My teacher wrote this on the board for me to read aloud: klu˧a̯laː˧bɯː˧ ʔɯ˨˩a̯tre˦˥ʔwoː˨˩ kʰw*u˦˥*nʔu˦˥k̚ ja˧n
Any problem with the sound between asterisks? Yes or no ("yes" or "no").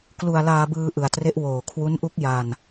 no